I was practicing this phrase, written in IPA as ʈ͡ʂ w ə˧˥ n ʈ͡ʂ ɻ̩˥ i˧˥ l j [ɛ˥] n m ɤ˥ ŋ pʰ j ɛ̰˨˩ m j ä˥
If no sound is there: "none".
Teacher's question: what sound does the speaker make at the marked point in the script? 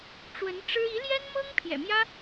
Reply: ɛ˥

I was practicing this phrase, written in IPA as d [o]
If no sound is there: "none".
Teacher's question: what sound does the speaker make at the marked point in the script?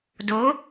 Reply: o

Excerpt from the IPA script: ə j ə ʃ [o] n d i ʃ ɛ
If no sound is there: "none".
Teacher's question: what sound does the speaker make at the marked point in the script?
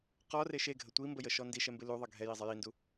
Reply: ɔ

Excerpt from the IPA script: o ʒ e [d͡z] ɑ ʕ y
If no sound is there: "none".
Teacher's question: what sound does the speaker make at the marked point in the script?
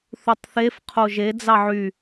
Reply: d͡z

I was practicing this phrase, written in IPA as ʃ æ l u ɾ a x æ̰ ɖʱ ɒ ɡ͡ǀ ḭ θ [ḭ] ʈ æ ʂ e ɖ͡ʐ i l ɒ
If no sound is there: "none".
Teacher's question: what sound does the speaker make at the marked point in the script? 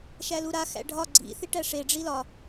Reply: i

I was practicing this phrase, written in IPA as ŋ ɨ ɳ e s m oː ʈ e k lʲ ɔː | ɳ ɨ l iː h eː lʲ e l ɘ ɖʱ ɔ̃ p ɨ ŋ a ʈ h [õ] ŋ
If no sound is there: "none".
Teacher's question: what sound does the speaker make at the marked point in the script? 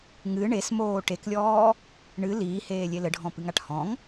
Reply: ɔ̃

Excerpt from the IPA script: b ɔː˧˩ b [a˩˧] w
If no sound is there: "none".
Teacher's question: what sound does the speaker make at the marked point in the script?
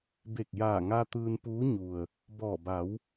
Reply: a˩˧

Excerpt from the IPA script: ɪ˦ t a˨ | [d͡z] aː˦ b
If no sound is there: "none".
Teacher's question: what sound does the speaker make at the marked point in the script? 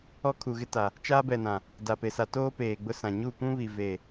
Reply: t͡ʃ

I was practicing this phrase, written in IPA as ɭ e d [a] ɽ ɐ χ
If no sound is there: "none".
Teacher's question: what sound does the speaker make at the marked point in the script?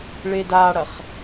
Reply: a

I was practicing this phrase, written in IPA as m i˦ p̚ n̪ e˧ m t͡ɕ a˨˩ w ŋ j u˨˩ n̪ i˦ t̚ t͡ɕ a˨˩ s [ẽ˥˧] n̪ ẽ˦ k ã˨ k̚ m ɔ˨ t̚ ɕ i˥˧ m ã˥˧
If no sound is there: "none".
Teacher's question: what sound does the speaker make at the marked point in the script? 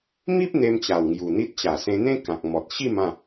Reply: ẽ˧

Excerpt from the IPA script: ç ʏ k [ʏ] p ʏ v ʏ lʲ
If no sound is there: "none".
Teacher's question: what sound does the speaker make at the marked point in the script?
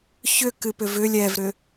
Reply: ɨ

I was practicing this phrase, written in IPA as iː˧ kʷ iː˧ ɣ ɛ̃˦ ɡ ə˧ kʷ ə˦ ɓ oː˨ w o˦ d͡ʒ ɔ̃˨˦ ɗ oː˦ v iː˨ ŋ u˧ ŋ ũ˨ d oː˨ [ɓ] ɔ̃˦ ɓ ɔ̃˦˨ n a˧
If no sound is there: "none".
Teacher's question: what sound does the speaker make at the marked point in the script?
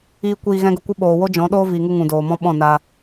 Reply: m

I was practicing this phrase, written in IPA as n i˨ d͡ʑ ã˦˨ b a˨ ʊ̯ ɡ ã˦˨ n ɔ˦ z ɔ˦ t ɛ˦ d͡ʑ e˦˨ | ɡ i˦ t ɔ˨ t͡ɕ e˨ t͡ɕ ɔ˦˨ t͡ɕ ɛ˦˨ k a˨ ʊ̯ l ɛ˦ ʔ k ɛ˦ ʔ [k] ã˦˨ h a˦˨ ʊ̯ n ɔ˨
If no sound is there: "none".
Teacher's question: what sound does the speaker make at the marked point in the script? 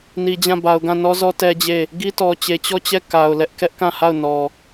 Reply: k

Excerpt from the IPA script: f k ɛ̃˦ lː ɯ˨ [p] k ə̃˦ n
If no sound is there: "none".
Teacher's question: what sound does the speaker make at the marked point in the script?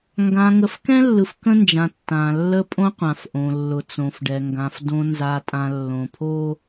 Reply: f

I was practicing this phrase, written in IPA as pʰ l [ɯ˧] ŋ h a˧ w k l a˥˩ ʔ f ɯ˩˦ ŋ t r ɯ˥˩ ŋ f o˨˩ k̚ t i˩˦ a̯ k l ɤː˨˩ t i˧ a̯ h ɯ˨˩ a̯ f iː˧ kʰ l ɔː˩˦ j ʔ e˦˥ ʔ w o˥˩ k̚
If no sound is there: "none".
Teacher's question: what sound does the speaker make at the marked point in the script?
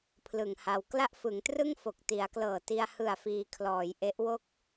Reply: ɯ˨˩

